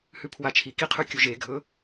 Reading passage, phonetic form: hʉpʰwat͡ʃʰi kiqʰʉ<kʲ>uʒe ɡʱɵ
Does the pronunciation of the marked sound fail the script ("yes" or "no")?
no